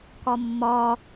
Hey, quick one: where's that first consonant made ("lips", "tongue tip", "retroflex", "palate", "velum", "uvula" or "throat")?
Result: velum